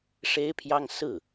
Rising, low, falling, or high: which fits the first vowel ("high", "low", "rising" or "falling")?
high